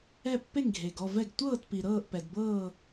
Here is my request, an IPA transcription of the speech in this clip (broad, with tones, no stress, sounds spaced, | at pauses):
ɛ˥˧ pː e˥˧ ŋ ɡʱ e˨ ɡ ɔ˥˧ v ɛ˥˧ ɡ tʷ ɤː˥˧ t p i˨ ɾ ɤː˥˧ ʔ p ɛ˨ d b ɤː˥˧